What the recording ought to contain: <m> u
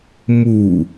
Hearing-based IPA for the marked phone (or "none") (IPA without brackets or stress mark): m